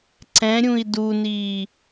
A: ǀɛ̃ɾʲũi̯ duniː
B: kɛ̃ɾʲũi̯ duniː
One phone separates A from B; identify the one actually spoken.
A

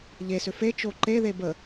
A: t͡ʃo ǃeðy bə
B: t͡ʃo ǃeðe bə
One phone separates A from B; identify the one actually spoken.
B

